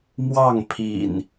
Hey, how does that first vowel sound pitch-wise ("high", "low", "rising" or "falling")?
falling